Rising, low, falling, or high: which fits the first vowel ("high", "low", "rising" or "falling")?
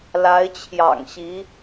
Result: rising